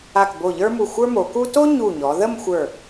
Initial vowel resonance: oral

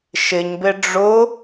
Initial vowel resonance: oral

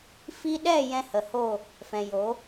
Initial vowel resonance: oral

